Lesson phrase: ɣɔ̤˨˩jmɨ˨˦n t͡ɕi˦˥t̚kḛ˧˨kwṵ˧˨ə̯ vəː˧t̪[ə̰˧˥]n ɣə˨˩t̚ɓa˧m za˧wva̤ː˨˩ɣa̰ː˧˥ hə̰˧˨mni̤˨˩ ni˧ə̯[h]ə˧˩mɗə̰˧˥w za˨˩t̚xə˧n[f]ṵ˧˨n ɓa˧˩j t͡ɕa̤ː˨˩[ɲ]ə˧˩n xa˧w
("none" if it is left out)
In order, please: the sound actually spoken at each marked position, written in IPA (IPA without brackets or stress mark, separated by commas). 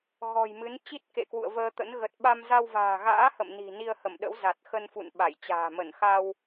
ə̰˧˥, h, f, m